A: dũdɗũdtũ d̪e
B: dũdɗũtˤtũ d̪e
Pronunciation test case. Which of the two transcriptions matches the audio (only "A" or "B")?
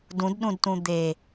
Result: A